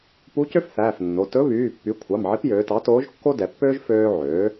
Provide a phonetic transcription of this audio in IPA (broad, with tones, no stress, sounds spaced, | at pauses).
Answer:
p u˧˥ c ø˥ f θ æː˩˧˩ f nː o˩˧˩ t ɵ˧˥ β yː˩˧˩ pː y˩˥ kʷʰ ɑ˩˧˩ m ʕ i˧˥ p j øː˩˧ t ɑ˩˥ t oː˧˥ ʒ kː o˥ d ɛ˩˧ pː øː˥ ʒ f øː˥ ʕ øː˩˥